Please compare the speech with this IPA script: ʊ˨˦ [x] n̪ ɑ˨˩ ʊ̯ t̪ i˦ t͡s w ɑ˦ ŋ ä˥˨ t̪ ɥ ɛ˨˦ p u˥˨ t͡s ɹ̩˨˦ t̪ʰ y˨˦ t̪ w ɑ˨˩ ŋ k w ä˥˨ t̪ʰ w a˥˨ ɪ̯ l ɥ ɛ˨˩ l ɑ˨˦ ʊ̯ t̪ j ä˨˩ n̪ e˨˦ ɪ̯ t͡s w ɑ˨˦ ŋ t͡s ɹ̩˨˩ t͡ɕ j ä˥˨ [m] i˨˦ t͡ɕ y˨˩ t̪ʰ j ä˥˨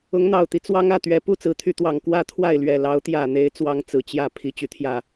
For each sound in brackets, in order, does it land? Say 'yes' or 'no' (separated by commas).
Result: no, no